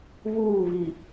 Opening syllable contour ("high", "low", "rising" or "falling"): falling